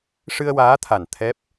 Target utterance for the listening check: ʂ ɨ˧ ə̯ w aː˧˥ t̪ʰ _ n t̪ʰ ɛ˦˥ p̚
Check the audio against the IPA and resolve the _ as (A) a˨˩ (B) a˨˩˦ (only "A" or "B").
A